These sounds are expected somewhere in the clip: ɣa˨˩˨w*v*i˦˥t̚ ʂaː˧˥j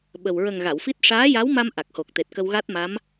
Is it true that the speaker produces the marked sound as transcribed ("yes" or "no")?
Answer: no